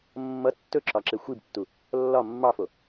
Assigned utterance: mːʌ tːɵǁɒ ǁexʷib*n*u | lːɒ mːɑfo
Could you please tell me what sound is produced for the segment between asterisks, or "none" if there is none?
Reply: tː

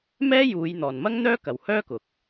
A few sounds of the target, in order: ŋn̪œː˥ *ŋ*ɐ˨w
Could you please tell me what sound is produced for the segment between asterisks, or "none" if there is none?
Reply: k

